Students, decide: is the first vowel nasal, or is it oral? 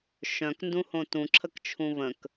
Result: nasal